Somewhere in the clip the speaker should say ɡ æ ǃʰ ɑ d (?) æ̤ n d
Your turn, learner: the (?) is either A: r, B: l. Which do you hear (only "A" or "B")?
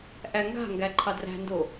A